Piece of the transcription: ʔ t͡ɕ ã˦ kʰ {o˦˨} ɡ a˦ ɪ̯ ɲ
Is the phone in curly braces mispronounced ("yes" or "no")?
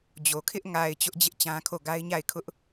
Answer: no